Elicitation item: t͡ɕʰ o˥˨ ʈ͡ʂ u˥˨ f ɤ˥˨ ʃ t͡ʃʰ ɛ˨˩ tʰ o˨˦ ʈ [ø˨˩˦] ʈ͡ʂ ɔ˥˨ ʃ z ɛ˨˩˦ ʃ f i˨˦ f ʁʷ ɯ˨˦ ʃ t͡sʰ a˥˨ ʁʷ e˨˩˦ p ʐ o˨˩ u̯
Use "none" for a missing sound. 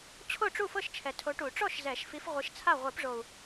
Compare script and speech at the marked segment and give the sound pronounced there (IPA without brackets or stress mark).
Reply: u˨˩˦